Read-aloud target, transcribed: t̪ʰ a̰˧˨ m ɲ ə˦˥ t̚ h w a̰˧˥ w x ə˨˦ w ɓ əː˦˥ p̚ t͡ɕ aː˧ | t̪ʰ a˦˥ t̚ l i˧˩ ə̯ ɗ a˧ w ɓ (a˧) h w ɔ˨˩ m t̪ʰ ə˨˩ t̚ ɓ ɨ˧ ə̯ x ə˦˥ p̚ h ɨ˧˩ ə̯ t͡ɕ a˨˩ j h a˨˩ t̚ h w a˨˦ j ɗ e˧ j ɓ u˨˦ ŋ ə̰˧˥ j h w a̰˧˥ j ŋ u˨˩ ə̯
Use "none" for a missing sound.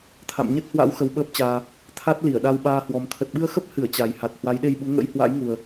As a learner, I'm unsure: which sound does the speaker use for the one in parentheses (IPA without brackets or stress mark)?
aː˧